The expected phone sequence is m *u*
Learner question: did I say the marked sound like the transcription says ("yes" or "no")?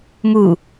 yes